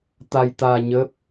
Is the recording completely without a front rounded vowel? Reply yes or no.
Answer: yes